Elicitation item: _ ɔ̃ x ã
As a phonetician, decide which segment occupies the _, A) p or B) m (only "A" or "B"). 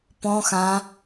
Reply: A